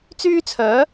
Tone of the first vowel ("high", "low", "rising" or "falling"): high